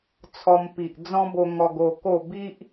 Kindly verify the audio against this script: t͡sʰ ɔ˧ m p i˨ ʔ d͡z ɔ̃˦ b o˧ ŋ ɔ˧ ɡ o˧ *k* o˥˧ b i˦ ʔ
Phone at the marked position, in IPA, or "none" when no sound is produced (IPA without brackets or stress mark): k